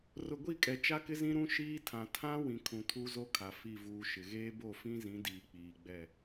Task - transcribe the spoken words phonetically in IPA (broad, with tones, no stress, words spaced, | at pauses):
rʊ˨ɡʷi˦˨kʼɛ˨ t͡ʃa˦kɪ˦zĩ˦ɾũ˦ ʃiː˦tʰã˨ tʰã˦ wĩ˨ kʰũ˨tʰu˦zo˦kʰa˨ fi˦˨vuː˦ʃɪ˨ ɣeː˦bo˦˨fĩ˦zĩ˨˦ diː˨k͡piː˨ɡ͡bɛ˦˨